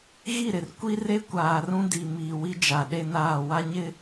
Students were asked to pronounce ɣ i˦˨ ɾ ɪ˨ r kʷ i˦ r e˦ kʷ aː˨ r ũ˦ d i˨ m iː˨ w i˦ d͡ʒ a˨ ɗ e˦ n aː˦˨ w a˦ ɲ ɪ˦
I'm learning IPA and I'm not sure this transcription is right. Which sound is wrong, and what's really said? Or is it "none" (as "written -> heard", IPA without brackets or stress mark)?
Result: none